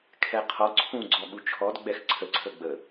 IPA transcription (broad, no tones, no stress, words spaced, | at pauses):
kʰɛqʰɔ ǀʰũ ɡ͡ǀɔɠut͡ʃʰɔd ɡ͡bɛxǀʰə ǀʰəɡ͡bə